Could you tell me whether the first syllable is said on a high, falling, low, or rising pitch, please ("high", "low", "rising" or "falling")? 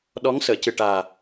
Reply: rising